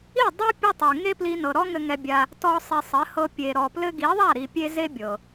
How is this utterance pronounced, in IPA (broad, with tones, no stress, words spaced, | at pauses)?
i˦˨dˤɛ˦ pʲɘ˦tˤɘ˨ ŋe˦ pli˦nɤ˧ ɾɔ˦ŋɘ˧ ŋɛ˧bʲa˧ | tɔ˧ sˤi˨sˤɘ˨˦hɤ˧ pʲe˨ɾɔ˨plɘ˦ ɡi˨˦ðˤa˦˨ɾi˨pʲe˧ ze˦bʲɤ˨